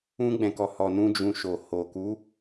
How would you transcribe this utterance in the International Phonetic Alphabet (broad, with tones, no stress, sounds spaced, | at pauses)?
ũ˧ ɡ͡b ɛ̃˨ k ɔ˨ h ɔ˨ n ũ˧ d͡ʒ ũ˧ ʃ o˨ h o˨ k u˨˦